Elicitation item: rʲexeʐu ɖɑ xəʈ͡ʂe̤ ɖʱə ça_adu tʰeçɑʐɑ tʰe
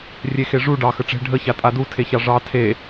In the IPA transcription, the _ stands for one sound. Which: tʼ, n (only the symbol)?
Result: tʼ